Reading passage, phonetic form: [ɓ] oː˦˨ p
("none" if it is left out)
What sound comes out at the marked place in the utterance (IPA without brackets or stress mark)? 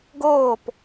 ɡ